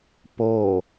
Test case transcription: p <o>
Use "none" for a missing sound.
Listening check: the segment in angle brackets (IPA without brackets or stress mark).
o